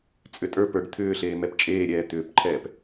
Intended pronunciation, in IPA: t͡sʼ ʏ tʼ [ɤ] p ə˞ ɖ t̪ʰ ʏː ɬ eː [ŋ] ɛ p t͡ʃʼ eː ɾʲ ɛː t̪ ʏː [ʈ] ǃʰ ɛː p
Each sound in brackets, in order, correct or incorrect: incorrect: ə˞, incorrect: m, incorrect: p

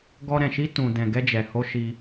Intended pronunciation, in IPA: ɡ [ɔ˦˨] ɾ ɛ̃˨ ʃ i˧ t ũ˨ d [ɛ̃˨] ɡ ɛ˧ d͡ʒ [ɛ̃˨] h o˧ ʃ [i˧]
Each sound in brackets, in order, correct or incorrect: incorrect: ɔ˧, correct, incorrect: ɛ˨, correct

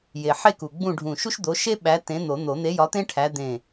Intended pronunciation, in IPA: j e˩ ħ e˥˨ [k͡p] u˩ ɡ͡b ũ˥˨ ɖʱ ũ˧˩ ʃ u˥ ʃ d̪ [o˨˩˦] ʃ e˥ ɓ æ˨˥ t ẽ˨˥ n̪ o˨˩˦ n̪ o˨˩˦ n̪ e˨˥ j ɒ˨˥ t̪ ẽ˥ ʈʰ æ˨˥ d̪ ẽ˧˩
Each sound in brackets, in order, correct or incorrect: incorrect: k, incorrect: o˨˥

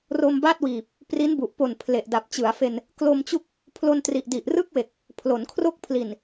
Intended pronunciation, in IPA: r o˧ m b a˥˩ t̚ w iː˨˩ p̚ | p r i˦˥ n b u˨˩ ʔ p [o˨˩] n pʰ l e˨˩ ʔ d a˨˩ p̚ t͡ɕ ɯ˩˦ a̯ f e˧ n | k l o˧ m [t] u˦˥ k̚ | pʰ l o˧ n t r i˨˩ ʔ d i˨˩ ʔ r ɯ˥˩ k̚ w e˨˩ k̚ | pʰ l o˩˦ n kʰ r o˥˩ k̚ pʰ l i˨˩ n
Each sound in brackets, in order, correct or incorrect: correct, incorrect: t͡ɕ

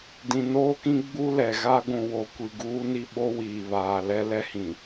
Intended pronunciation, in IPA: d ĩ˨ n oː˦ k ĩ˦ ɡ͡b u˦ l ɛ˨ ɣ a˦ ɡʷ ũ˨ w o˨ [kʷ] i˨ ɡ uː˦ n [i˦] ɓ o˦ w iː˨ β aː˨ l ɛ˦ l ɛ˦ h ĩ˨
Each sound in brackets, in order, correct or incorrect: correct, correct

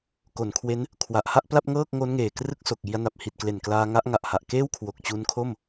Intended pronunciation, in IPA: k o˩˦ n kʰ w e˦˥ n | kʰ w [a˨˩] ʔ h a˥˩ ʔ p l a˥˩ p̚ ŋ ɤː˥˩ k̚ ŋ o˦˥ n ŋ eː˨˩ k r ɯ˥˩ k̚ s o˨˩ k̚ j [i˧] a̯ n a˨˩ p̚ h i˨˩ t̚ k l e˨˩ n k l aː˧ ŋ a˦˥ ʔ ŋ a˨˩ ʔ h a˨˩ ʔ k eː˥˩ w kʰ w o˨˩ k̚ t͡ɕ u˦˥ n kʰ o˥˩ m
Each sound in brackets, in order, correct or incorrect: correct, correct

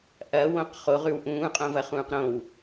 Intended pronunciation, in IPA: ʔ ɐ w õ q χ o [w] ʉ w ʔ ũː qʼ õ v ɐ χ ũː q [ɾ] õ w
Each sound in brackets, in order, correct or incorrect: incorrect: ʁ, correct

